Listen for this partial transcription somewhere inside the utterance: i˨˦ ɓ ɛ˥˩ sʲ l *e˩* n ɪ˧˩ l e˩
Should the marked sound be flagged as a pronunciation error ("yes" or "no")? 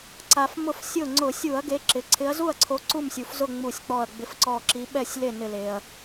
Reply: yes